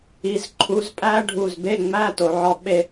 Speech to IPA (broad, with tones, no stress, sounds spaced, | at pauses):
i˩˧ z ǃʰ u˩˧ z pʼ æ˦˥ ɖʱ u˧˩ z b e˧˥˧ ŋ͡m æ˧˥˧ t o˩˧ ʕ ɒ˧˥˧ ɓ e˥˧